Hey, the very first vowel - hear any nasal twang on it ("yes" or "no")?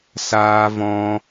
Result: no